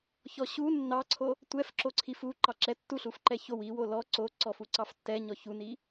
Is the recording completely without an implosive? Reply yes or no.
yes